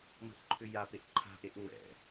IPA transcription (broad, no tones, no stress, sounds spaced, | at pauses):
m ə̤ ʔ ǃʰ ʏ j a p e ʔ ǃʰ a̤ ʔ e ʔ ŋ͡m ɛ̰